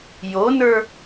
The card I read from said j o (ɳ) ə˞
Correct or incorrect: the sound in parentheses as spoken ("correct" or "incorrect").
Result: incorrect